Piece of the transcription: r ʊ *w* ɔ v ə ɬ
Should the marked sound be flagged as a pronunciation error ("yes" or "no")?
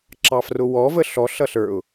no